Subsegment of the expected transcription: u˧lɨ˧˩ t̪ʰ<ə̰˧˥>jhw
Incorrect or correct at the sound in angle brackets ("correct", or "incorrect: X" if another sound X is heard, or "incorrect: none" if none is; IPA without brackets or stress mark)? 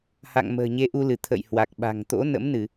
incorrect: ə̰˧˨